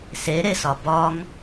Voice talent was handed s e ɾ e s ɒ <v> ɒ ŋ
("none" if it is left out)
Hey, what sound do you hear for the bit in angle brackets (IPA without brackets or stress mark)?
b